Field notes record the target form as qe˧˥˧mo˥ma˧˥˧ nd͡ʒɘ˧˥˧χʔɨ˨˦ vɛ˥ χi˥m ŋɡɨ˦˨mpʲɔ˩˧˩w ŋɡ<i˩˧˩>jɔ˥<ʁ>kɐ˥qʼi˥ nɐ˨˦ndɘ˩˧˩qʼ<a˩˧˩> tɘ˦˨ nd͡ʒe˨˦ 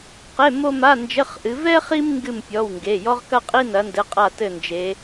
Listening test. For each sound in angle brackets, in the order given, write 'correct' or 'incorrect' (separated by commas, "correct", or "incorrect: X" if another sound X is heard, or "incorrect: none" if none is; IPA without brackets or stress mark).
incorrect: e˩˧˩, correct, incorrect: a˦˨